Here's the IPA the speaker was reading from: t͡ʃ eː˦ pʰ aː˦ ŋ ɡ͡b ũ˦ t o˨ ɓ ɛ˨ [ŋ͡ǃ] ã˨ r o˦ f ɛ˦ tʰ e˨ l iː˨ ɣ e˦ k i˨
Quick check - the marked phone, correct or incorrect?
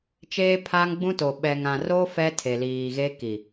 incorrect